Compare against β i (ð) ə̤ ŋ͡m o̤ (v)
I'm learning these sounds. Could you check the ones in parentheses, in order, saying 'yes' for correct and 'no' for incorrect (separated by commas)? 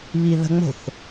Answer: yes, no